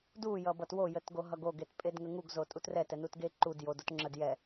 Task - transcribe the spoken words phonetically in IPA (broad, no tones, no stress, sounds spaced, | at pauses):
d u j ʌ b ʌ t w o j ə t ɡ o ɦ ʌ ɡ o ɡ e t pʼ e d ŋ ə ŋ u ɡ z o tʼ u t r ɛ t ɛ n u t ɡ e ǃ u d j o d o t ŋ͡ǁ ə d j ɛ